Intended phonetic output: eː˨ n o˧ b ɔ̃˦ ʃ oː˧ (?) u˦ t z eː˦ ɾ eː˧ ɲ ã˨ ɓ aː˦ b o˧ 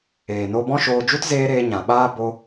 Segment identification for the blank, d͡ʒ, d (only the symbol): d͡ʒ